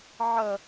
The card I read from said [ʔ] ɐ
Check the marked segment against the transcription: incorrect: ʕ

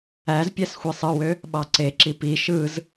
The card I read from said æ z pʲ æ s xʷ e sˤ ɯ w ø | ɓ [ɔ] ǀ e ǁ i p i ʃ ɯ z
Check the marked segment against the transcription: incorrect: ɑ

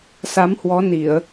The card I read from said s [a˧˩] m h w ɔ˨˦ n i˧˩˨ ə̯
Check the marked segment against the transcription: incorrect: a˨˦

